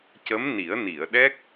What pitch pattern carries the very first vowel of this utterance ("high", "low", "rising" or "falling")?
rising